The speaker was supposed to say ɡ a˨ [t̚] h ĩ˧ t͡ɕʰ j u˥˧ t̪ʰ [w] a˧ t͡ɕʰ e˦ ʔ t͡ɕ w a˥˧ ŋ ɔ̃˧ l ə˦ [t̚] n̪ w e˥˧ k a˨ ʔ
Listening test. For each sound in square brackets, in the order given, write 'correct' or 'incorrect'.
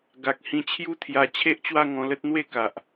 incorrect: k̚, incorrect: j, correct

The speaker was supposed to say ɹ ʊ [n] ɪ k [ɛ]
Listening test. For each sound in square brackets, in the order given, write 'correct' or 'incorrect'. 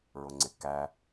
incorrect: ŋ͡ǀ, incorrect: æ

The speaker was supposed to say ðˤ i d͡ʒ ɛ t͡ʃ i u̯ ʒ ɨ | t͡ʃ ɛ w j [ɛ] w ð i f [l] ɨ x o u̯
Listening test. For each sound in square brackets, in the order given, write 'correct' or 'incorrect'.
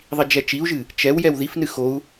correct, incorrect: n

